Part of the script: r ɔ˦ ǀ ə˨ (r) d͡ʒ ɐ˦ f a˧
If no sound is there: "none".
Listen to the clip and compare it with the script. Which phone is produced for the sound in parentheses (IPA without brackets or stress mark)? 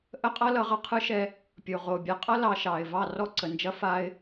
n